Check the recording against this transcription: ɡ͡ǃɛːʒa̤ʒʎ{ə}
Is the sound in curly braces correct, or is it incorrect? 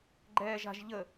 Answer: correct